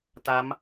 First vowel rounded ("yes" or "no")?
no